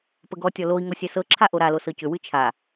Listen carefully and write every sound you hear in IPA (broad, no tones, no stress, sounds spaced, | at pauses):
p ə ɡ ɔ tʲ ɔ l o i̯ ŋ o sʲ ɛ s ɤ ǁʰ a ʔ o ɾ a l o s ɤ c ʏ w ɨ t͡ʃʰ a